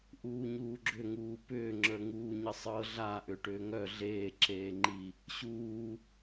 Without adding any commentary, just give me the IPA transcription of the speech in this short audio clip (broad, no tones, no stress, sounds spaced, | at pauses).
ʔ uː ɲ uː ɡ͡ǁ ʏ ŋ uː p ʏː ŋ͡ǁ ə˞ ŋ uː ɲ ə sˤ ɤ ɮ a ʔ ʏ ʈ ʏː ŋ œ ɮ eː ǁ eː ŋ͡ǃ i | ɕ uː